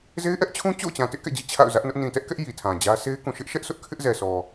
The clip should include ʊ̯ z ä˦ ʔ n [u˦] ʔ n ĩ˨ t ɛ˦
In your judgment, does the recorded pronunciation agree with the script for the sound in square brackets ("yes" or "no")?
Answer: no